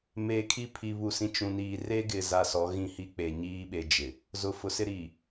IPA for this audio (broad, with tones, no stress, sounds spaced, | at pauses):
m eː˨ kʰ i˦ pʰ i˨ β u˨ s ĩ˨ t͡ʃ ũ˨ n iː˨ r e˦ ɡ ɪ˨ z a˨ s ɔ˨˦ ɣ ĩ˦ h i˦ k͡p e˨ ɲ iː˦ ɓ e˨ d͡ʒ ɪ˨ | z ʊ˨ f ʊ˨ s ɪ˦ ɾ iː˨